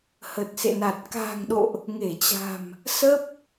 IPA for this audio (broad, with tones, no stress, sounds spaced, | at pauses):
h ə˨˩ t̚ s ḛ˧˨ n a˨˩ t̚ k a̤ː˨˩ ŋ ɗ o̰˧˨ ʔ | ŋ e˧˩ t͡ɕ a̤˨˩ m | s ə˦˥ p̚